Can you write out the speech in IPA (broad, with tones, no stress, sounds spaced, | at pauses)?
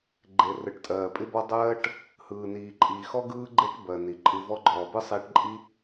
ɡ͡ǃ e˩ r ɯ˩ ʈ tʼ ɜː˩ pʼ ɪ˥ b ɔ˥ dˤ ɜː˥ ʈ | h ɯː˩ n iː˩ ǃʼ iː˩ x ɔ˥ ɡ ɯː˥ ɡ͡ǃ e˥ ʈ b ɜ˩ n i˩ ǃʼ ɯ˧ v ɔ˥ ɡ͡ǃ ɔː˩ b ɯ˥ sˤ iː˧ ʈ ǃʼ i˥